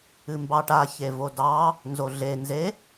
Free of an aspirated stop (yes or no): yes